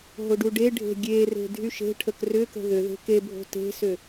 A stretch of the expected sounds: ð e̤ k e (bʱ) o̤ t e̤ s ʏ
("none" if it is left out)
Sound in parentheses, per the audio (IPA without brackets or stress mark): bʱ